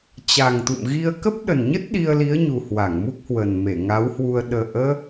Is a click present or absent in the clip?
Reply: absent